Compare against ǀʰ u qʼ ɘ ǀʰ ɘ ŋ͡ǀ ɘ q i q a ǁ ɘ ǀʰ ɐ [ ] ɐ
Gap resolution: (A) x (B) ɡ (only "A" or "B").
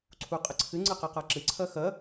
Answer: A